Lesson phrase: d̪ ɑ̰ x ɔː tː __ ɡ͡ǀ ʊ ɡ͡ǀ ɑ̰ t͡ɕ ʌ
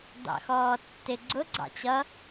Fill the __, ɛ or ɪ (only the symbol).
ɪ